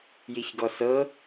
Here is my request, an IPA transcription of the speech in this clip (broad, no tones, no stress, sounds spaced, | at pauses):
j i ç ɡ ɔ s ɤ